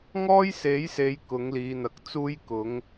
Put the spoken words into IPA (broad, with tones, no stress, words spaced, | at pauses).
ŋɔː˥jse˨˥jse˨˧j kʊ˨˥ŋliː˨˧n̪ɐ˨˥k̚ t͡suː˥jkʊ˨˥ŋ